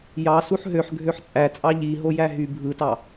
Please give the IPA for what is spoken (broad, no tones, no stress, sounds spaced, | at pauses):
j ɑ s u ħ ɦ ø ħ ɡʱ ø ħ t͡sʼ æ t͡sʼ ɑ ʎ i ɦ o j æ ɦ y bʱ ɯ t ɑ